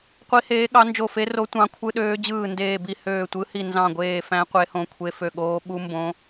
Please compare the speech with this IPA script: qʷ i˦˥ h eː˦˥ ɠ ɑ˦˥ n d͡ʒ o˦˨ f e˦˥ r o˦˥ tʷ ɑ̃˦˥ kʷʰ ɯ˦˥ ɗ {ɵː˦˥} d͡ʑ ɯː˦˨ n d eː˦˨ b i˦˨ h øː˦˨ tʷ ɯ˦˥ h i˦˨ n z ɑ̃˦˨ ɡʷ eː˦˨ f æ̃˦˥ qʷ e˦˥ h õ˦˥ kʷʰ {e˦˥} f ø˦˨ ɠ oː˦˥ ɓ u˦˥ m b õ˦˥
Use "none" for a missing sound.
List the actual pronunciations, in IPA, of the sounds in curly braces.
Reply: øː˦˥, e˦˥

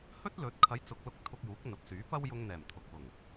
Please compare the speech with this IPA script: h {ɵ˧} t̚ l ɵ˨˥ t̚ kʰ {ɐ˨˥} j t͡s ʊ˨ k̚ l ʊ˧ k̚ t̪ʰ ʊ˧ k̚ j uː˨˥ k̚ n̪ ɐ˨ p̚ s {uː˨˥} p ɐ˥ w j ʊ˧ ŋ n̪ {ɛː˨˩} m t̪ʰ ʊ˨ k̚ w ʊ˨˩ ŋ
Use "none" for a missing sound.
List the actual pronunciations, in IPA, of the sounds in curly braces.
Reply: ɵ˥, ɐ˨˥, yː˨˥, ɛː˨˩

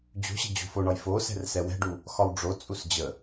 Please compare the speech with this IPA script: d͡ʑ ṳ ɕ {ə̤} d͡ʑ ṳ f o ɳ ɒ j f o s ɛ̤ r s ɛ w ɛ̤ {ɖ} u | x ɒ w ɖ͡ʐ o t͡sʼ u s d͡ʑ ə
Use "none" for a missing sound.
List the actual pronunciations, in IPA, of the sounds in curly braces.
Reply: ə̤, ɖ

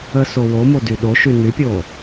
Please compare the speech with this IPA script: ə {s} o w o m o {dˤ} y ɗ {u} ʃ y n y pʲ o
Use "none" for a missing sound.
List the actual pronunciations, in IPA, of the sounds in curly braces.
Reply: s, d, o

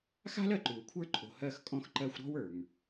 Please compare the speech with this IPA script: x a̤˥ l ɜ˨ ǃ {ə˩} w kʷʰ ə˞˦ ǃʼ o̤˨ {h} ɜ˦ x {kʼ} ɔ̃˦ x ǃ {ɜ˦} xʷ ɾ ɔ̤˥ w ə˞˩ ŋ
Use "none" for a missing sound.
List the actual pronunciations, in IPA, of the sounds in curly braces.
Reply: ʉ˩, h, kʼ, ɜ˦

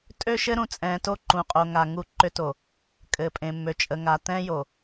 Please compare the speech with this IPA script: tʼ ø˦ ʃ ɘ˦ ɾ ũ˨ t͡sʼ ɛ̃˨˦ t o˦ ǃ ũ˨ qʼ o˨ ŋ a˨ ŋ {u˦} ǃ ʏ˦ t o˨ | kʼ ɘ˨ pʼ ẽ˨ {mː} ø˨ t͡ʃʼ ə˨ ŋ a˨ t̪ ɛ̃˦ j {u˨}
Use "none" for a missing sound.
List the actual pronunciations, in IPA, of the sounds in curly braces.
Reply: u˦, mː, o˨

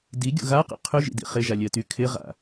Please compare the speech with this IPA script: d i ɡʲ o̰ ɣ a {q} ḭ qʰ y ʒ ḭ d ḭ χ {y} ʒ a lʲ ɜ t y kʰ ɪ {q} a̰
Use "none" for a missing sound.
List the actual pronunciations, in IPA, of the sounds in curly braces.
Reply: q, ɪ, ʁ

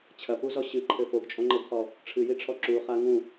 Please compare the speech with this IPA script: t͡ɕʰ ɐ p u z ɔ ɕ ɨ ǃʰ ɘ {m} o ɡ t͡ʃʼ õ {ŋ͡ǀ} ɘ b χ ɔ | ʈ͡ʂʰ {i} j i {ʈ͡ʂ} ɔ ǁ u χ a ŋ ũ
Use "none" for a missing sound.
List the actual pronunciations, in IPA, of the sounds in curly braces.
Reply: f, ŋ͡ǃ, ɨ, ʈ͡ʂʰ

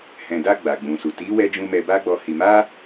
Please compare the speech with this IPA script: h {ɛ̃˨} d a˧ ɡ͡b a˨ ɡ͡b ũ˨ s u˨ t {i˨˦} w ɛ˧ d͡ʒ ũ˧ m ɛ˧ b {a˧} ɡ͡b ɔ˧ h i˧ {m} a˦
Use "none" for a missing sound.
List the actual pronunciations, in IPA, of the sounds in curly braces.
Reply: ɛ̃˨, i˨˦, a˦, m

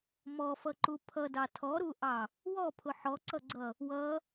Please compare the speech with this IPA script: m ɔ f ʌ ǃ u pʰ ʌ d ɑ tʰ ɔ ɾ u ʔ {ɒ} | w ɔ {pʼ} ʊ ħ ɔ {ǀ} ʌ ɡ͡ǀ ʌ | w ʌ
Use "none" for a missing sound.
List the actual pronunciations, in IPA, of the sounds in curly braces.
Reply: ɑ, pʰ, ǀ

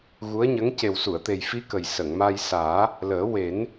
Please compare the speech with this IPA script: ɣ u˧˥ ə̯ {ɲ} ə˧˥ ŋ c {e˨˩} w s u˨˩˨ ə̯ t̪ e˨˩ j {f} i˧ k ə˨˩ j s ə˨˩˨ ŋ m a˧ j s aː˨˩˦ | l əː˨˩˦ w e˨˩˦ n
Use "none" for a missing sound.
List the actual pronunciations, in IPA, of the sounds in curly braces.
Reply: ɲ, e˨˩, f

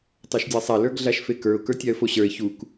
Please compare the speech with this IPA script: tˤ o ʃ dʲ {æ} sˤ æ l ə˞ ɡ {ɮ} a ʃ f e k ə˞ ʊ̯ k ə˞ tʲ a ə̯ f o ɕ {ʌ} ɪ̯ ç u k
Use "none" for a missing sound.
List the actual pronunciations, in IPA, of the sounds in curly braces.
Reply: æ, ɮ, ə˞

